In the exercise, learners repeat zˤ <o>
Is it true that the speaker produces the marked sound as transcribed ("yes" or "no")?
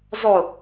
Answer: yes